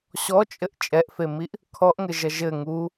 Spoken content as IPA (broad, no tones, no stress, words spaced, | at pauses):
ɕɔt͡ʃʼɘʔ t͡ʃʼɛʔfemiʔ | kʰɔʔŋɘʒɐ ʒɘ ŋu